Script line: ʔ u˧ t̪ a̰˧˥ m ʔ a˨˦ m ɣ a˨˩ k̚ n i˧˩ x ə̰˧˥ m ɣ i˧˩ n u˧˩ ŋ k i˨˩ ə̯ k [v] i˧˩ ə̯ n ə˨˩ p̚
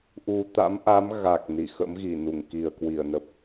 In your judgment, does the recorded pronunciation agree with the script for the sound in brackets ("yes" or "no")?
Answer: no